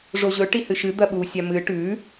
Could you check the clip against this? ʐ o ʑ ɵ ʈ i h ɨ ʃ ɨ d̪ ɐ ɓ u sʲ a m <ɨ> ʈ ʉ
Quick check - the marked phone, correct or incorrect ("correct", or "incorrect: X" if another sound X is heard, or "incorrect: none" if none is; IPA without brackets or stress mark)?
correct